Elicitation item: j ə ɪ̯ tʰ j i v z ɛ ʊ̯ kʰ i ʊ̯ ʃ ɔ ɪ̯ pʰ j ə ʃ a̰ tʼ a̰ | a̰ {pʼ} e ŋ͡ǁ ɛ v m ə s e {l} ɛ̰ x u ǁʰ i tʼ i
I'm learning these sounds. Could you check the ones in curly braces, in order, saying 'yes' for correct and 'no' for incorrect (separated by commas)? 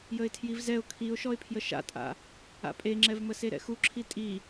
yes, no